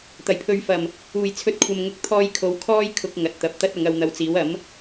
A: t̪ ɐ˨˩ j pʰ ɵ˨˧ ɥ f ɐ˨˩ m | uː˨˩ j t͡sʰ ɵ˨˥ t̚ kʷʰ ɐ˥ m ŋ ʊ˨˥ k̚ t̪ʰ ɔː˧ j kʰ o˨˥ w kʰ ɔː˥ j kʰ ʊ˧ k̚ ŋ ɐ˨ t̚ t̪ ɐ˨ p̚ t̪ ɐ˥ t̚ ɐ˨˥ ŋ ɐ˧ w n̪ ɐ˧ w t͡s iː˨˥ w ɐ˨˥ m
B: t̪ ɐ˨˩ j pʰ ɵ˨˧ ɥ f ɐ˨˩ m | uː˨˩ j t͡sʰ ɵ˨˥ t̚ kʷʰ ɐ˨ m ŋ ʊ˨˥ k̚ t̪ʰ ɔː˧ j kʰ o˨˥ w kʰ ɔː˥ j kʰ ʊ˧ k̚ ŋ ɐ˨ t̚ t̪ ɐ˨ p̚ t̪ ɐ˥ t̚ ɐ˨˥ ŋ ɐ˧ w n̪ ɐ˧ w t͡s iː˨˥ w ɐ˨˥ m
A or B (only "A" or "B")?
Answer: B